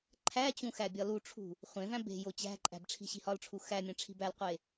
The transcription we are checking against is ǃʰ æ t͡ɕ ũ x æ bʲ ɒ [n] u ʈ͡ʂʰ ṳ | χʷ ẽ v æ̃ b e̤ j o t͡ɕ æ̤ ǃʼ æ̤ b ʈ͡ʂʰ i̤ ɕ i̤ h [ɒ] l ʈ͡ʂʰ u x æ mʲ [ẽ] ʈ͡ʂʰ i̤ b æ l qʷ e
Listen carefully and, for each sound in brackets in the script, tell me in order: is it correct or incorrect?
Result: incorrect: l, correct, correct

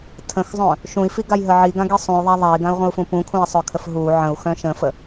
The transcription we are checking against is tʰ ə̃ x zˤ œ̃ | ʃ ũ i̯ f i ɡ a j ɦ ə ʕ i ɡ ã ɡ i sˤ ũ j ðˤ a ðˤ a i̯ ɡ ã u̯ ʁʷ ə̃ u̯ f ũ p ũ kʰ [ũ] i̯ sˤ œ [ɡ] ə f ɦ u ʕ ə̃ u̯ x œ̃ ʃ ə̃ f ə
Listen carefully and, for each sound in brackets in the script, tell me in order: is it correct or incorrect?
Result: correct, incorrect: kʰ

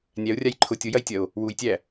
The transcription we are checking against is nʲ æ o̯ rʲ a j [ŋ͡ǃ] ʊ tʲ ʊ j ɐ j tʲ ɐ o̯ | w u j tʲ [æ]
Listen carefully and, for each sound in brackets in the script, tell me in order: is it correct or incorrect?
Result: incorrect: ǃʰ, correct

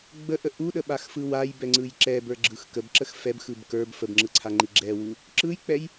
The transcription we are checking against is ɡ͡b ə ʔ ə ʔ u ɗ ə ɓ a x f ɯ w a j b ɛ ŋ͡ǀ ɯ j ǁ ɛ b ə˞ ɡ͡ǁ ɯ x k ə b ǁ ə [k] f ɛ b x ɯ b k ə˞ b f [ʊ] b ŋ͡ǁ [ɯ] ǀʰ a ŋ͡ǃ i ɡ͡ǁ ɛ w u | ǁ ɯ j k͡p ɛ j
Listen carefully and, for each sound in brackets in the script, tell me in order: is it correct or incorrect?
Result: incorrect: x, incorrect: ə, correct

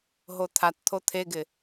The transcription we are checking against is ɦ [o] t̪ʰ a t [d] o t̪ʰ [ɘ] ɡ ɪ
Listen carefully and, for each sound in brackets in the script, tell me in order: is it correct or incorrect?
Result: correct, incorrect: t̪ʰ, incorrect: e

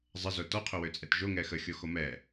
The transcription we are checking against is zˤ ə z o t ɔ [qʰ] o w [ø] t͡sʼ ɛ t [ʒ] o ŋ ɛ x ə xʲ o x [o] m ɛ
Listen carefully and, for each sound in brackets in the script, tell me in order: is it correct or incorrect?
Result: correct, correct, correct, correct

